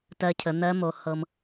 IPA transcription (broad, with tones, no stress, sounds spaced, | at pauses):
t ɜ˧ cʰ ə˩˧ n̪ ɜ˧˥ m o˩˧ h ɤ˧ m